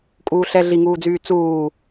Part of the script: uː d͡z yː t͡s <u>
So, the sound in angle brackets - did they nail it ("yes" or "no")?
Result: no